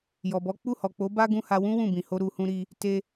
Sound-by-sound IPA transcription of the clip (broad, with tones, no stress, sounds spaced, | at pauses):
j ɔ˨ b ɔ˨˦ k͡p u˦˨ h ɔ˨ k͡p o˨˦ b a˦ ɡ ũ˦ h a˧ w ũ˦ w ũ˦˨ b ĩ˨ h o˧ ɾ u˨ h ũ˧ ɾ i˧ | t e˦